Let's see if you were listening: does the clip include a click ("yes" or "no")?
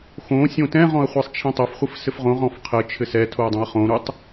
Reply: no